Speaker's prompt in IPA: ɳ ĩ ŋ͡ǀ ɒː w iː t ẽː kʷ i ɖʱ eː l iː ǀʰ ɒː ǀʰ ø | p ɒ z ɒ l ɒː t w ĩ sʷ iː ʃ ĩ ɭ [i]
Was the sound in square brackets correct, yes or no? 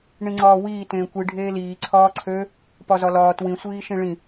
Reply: no